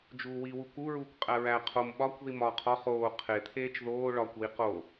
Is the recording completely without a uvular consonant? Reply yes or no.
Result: no